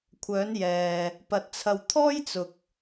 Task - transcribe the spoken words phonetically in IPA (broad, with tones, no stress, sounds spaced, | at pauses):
kʷʰ œː˨˧ n j ɛː˨ | p ɐ˨ t̚ t͡sʰ ɐ˨ w t̪ʰ ɔː˥ j t͡s ʊ˨ k̚